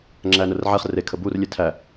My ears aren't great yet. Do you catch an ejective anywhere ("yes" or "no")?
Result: no